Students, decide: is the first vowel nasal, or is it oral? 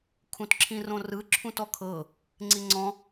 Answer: nasal